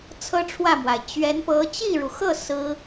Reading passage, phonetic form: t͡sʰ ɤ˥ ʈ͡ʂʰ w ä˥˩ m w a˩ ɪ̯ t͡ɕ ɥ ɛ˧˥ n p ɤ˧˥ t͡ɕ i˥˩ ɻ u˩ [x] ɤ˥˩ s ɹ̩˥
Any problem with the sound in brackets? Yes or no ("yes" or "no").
no